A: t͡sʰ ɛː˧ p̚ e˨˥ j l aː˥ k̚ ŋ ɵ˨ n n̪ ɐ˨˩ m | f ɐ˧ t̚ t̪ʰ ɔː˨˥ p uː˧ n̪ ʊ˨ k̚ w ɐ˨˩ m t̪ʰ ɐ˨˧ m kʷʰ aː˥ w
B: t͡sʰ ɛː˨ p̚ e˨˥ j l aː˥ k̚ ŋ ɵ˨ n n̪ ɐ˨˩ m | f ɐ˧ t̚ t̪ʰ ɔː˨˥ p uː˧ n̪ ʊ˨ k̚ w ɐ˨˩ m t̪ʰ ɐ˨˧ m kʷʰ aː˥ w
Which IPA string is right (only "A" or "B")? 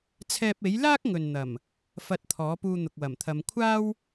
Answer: A